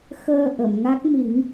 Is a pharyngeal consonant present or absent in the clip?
absent